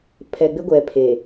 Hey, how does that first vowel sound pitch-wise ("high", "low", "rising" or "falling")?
low